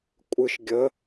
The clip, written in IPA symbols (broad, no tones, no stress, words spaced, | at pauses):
kʷʼɨʃ ɡʲə